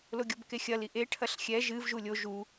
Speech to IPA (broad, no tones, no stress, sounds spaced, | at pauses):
l o ɡʲ ɔ b k e xʲ ɐ l i ʔ e ʈʰ ɐ ɬ xʲ ɛ ʒ ɨ v ʒ u lʲ o ʒ u